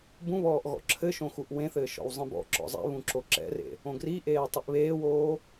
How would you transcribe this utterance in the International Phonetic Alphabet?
b ũ β ɔː ʔ ɣ ɔ̰ ǁʰ ɘ ʃ õ x u ʔ w ẽ θ ɘː ʃ ɔ̰ w zˤ ĩ b ɔ̰ ǁ ɔ̰ zˤ ɛ̰ β ũ ǁ o ǁ ɛ̰ r ḛ | õ ɡ r i ʔ eː tˤ ɘ ʔ β eː w oː

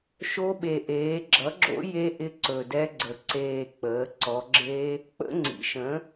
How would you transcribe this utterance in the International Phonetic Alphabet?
ʃ o˦˥ ɓ e˨˩ ʔ eː˩˧ ɡ͡ǁ ʌ˩˥ ɡ͡ǁ o̰˦˥ j e˦˥ ʔ ɪ˦˥ ǀ ɵ˨˩ d ɛ˦˥ ɡ͡ǀ ə˨˩ ǀ eː˨˩ k͡p əː˩˧ ǀ ɔ˩˧ ɡ͡ǁ e˦˥ | k͡p ə̰˦˥ ŋ͡ǀ ḭ˩˥ ʃ ə̃˩˥

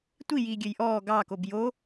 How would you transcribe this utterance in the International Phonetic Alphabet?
tʷ i j iː ɡʲ ø j ʔ ɔː ɡ ɑ k o b j o

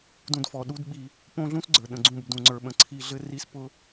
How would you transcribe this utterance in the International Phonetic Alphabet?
d ũ˦ d f ɔ˧ ɗ u˦ d ɓ i˧ | p õ˦ ɮ ũ˦ s ɡ͡ǀ ə˞˨ ɗ ə̃˨ ɡ͡ǀ ũ˦˨ b d ũ˨ ŋ͡ǀ ə˞˨ ɓ ə̃˨ ǀʰ i˧ ɮ ɘ˦ r i˦ s p ʊ˦

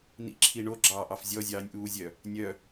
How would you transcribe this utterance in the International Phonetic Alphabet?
n ḭ ǁʰ i ɳ o ɡ͡ǁ ɑː ʔ ɑ f zʲ ɔ zʲ ɑː nʲ ʔ uː zʲ œ | nʲ œ

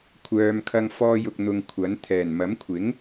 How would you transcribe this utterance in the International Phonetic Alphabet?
kʷʰ œː˨ m kʰ ɐ˧ ŋ f ɔː˧ j ʊ˨ k̚ n̪ ʊ˨ ŋ kʷʰ ɐ˨˥ n t̪ʰ ɛː˨˩ n m ɐ˨˥ m kʷʰ ɪ˨˥ ŋ

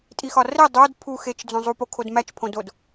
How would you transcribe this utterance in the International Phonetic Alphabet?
tʼ i x ɒ r e dˤ o d pʰ u x e t͡ʃ d͡z õ zˤ u p o kʰ o d m æ t͡ʃ pʰ õ d o d

